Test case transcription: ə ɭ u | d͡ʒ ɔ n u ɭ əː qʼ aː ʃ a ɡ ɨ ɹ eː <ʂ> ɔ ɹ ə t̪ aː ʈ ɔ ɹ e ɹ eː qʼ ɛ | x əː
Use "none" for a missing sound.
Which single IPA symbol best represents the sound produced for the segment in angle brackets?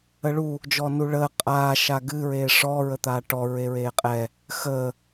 ʂ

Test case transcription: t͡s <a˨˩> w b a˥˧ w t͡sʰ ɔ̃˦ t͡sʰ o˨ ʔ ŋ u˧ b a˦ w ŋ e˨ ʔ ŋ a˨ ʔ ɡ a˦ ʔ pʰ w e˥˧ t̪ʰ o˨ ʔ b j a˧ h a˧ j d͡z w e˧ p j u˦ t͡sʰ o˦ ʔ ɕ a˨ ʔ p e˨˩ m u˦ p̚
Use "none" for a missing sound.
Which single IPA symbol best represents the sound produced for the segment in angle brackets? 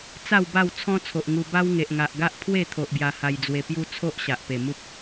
a˥˧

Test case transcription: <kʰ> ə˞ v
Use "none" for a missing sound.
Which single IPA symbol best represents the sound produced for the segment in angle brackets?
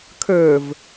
kʰ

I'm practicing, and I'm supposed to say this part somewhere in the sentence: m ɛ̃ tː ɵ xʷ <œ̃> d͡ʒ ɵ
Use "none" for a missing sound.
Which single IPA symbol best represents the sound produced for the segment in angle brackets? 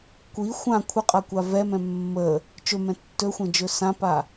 ɛ̃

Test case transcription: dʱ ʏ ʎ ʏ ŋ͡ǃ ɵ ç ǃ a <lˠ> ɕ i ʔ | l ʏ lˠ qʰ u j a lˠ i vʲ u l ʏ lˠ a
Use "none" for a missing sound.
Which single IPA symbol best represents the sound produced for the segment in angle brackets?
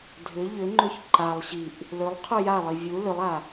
lˠ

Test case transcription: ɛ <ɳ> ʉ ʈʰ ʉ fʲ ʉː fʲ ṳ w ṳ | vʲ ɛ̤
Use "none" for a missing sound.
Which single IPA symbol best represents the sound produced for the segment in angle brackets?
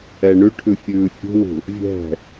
ɳ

